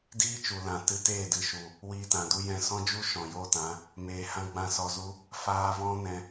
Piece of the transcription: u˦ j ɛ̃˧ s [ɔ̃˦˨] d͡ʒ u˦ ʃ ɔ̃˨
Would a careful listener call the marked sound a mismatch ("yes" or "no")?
yes